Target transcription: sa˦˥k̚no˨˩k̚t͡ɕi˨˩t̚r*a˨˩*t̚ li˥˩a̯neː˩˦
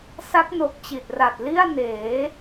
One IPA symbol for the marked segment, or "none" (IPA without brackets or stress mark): a˨˩